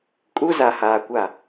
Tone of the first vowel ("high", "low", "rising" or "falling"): high